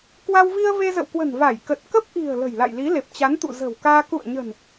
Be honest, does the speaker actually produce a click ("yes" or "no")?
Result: no